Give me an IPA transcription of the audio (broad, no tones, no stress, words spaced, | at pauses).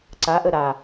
ǀaʔə ɾa